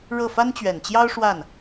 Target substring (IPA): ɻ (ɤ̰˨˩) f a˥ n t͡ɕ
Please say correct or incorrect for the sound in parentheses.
incorrect